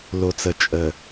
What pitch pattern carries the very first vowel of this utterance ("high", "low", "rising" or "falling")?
low